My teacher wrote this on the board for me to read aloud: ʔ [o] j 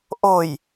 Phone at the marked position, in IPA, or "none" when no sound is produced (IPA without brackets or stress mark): o